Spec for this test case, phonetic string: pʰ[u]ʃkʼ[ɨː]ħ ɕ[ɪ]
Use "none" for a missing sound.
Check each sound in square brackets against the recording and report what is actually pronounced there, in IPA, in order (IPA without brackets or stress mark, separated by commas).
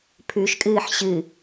ʉ, ɨː, ɨ